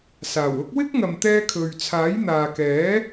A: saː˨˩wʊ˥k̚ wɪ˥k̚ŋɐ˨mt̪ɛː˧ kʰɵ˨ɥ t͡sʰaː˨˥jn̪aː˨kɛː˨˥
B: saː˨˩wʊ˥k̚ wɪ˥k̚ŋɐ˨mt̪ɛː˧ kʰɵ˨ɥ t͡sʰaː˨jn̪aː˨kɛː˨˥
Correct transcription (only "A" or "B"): A